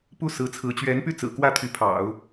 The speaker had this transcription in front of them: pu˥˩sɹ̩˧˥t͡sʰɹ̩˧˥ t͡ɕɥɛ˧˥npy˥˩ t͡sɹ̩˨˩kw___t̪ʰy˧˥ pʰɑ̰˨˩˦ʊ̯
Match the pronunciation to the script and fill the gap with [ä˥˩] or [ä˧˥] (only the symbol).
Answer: ä˥˩